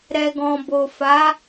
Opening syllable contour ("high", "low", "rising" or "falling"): low